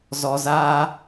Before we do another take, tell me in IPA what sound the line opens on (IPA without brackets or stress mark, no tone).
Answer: z